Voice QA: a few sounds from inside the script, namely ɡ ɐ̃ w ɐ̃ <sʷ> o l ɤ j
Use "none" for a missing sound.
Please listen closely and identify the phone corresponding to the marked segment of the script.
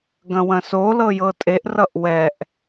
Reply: s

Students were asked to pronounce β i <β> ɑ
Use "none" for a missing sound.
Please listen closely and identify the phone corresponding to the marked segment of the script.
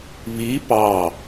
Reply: p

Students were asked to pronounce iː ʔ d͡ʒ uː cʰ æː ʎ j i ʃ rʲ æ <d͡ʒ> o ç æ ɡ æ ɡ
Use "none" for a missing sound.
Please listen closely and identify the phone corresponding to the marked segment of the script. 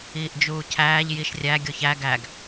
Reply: ɡʲ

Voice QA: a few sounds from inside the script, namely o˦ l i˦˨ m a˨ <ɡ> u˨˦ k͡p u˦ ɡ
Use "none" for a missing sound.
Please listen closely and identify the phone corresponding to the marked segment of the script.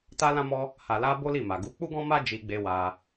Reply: ɡ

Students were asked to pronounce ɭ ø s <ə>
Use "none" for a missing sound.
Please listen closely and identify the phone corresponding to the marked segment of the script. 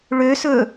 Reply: ɵ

